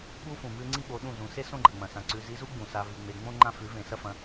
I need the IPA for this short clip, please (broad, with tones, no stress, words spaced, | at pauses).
ɓu˧ fũ˨mʉ˦ŋ͡ǀi˦ ɓo˨˦ ɗũ˦˨ zũ˨se˦ sõ˦ɡ͡ǃɐ˨ŋ͡mɐ̃˨sã˨ ǀʉ˨ zi˧zu˦ ɡ͡bũ˨sa˧ vi˨ŋ͡me˨ ŋ͡mõ˦ ŋ͡ǃã˦fʉ˨˦vẽ˨ sɐ˦fɐ̃˧